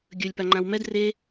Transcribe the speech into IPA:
ɡʲ ɵ lʲ p a ŋ͡ǃ ã w m ɛ d r e

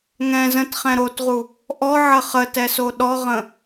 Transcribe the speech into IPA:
ŋ ɛ̃ z ə̃ t χ ɛ̃ ɾ o t ʁ u | ʔ ɔ ʕ ə χ ə t ɛ s o ɗ ɔ ʁ ə̃

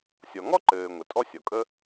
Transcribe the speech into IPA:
sʲ ɔ˩ ŋ ɔ˥ ǃ ɘː˩ ŋʷ ɘ˩ tʼ ɔ˥ sʲ ɔ˩ kʼ ə˥

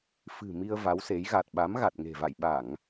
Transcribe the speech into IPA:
f ɨ̤˨˩ m i˧ ə̯ v a˨˦ w s e˨˦ j ɣ a˨˩ t̚ ɓ a˨˦ m ɣ a˨˩ t̚ ŋ e̤˨˩ v a̰˧˨ j ɓ a˧˩˨ ŋ

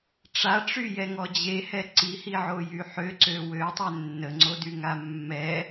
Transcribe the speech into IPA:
ʈ͡ʂ a ʈ͡ʂ y j ɛ ŋ ɔ d͡ʑ e h ɛ ǀ i h i ʕ o j y ħ ø ǀ ø w ø tˤ ɛ nː ə ŋ͡ǀ o d y ŋ a mː ɛ

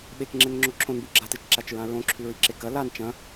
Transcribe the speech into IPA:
ɓ e k ŋ͡ǁ e n ŋ͡ǁ o ǁʰ õ n b u ɡ͡ǁ a t ɨ t͡ʃ ǁ a t͡ʃ ɹ ã ɹ õ ǁʰ ʉ ɹ i ǁ e k ɐ l a n t͡ʃ ɐ̃

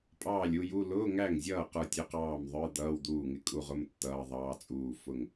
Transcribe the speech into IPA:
pʼ ɑː˥˩ lʲ u˧˥˧ j u˧˥˧ l ʊː˧˥˧ ŋ æ˥˩ ŋ zʲ ʌː˥˩ q ə˞˥˩ tʲ ʊ˧˥˧ q ɑː˥˩ m ðˤ ə˞˧˥˧ d̪ ʌː˧˥˧ w d̪ uː˥˩ ŋ ɪ˥˩ kʼ u˥˩ ʁ ʊ˧˥˧ m tː ʌː˧˥˧ ðˤ ɑː˧˥˧ t͡sʼ uː˥˩ f ʊ˥˩ ŋ

